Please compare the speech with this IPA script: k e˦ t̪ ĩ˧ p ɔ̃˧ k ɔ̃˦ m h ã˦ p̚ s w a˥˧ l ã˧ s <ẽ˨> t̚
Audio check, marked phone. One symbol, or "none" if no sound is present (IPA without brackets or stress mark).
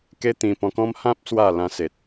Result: e˨